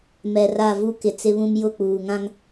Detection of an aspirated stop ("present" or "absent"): absent